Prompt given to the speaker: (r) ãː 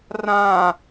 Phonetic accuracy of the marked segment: correct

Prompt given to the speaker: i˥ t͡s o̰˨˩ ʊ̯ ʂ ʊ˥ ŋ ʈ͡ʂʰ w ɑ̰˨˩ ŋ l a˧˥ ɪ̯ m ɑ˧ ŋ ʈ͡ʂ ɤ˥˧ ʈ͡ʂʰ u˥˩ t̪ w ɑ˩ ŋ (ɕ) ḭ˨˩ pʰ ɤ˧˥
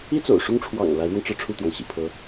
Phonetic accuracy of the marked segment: correct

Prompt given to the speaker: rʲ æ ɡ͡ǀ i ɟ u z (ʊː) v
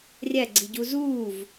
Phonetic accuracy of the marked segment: incorrect: uː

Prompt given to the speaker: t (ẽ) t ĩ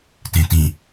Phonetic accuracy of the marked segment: correct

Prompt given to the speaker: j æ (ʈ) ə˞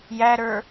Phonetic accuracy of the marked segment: incorrect: ɾ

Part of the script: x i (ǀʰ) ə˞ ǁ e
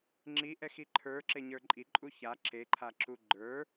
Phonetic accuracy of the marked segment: incorrect: ǃʰ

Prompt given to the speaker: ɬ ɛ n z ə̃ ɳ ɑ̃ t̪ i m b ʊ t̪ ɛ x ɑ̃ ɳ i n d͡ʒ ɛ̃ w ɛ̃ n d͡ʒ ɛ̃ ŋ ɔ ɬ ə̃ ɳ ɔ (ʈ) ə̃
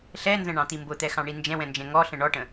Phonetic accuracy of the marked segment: correct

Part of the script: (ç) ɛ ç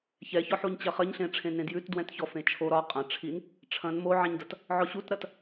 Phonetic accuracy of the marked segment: correct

